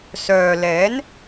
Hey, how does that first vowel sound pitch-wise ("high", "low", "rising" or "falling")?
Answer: low